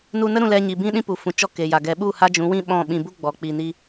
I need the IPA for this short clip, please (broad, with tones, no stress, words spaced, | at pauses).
nu˧nə˦ ɾũ˧lɛ˧ ɲi˨bĩ˦ ɗĩ˦pu˨ fũ˨t͡ʃɔ˧ ke˨ja˨ ɡɛ˨˦ɓu˦˨ ha˦d͡ʒũ˨˦wĩ˦ ɓɔ̃˦˨ ɓĩ˧ bu˦ ɡ͡bɔ˨k͡pi˨ni˧